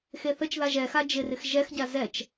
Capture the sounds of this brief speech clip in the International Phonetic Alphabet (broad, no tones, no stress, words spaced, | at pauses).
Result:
xeθət͡ʃða ʒɛxa d͡ʒɪrɪx ʒɛxɟa zɛt͡ʃ